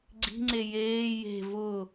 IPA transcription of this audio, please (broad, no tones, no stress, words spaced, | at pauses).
ɡ͡ǀi̤ŋ͡ǀe jeː je̤ vʊ